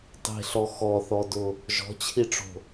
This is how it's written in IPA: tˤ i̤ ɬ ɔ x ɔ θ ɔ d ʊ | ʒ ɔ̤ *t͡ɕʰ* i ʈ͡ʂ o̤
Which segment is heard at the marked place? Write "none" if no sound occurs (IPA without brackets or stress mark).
t͡ɕʰ